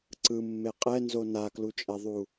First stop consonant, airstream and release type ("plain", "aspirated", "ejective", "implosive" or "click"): click